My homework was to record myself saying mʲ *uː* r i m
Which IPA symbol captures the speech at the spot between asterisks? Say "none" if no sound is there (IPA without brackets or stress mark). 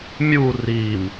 u